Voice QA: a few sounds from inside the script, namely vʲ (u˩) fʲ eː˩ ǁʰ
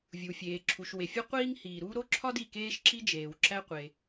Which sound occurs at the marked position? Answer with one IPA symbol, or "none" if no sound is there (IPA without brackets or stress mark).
u˩